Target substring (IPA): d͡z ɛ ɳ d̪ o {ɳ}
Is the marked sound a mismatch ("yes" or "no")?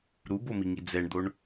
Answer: no